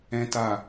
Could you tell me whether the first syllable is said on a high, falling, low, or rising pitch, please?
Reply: high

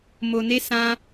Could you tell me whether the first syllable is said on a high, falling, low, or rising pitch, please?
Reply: low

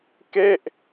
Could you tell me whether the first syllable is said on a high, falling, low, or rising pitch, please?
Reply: falling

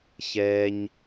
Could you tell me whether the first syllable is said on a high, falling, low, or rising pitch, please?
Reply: low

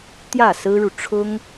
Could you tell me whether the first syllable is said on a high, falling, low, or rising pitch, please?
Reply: falling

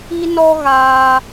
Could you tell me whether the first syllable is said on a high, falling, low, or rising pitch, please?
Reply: high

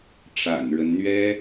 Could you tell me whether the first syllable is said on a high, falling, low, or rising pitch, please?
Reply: low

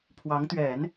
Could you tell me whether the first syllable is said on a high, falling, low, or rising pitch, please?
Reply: rising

